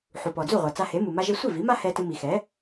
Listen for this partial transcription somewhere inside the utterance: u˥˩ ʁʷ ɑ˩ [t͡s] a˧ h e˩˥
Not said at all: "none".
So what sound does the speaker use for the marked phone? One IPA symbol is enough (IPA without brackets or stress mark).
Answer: t͡s